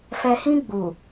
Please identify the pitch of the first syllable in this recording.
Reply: low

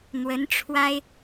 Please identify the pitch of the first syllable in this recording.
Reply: rising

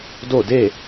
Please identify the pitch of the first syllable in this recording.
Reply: falling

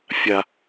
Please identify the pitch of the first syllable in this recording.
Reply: low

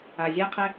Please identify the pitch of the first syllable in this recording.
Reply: low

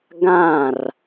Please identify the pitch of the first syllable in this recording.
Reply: falling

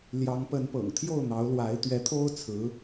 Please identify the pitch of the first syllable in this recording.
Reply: rising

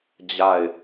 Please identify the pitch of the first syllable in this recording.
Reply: falling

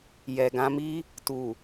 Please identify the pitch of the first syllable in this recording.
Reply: low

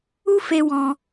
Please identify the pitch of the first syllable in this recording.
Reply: high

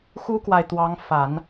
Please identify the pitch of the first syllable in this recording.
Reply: high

